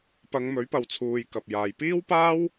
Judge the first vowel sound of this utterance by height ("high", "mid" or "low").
low